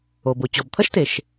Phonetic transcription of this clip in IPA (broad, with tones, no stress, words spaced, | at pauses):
o˩bo˩ t͡ɕɔ˩bt̪ʰʌ˥ʃte˩ʃ